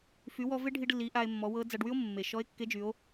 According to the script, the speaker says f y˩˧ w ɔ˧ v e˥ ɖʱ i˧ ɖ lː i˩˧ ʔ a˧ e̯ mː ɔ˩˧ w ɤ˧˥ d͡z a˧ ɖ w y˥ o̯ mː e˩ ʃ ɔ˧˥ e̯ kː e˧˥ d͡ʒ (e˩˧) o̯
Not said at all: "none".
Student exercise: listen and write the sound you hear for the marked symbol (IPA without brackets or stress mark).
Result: y˩˧